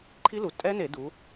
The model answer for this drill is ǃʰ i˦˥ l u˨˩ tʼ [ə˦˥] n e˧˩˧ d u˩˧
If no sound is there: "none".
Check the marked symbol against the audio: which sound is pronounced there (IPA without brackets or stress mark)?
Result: ɛ˦˥